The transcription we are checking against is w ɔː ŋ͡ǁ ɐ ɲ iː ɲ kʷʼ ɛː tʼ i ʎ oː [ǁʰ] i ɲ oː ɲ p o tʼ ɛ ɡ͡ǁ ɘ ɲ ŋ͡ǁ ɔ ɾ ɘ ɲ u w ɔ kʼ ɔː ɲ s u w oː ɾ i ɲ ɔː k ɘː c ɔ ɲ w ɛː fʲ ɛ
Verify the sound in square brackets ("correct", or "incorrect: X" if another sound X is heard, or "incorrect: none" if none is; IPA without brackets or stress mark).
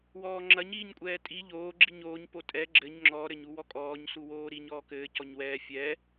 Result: incorrect: ɡ͡ǁ